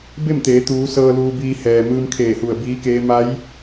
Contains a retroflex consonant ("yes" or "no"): no